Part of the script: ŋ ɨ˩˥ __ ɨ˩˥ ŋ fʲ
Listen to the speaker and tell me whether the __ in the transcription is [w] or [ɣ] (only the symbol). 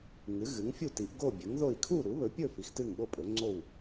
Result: ɣ